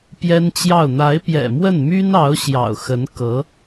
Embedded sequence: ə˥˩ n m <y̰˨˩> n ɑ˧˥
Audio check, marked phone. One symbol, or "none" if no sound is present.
y˥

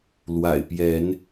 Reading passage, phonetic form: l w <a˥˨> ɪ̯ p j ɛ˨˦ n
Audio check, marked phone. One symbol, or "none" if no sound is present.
a̰˨˩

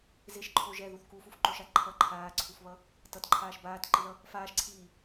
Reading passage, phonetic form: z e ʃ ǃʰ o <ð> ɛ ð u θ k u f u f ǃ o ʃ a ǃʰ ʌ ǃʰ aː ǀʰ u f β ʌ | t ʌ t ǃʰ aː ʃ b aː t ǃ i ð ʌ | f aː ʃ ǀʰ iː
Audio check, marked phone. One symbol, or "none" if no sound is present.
ʒ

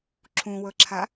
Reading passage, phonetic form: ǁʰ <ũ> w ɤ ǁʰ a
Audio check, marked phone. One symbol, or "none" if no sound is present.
ũ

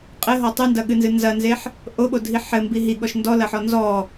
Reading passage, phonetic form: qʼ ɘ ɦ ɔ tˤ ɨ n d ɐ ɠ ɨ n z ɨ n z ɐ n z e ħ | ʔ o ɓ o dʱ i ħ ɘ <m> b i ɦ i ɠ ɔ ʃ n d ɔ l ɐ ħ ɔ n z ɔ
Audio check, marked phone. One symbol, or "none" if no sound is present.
m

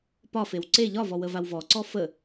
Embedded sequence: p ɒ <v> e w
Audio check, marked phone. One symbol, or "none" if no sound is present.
f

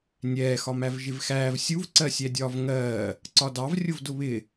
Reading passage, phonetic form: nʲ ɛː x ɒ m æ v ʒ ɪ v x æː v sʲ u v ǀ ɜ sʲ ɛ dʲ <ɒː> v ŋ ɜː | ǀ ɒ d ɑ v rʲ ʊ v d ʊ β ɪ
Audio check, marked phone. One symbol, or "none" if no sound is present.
ɒː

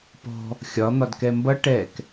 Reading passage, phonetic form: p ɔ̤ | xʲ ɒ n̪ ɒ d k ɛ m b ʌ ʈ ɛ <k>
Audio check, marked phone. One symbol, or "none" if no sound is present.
k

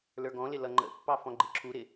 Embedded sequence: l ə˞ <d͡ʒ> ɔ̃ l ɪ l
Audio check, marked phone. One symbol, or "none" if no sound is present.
ɡ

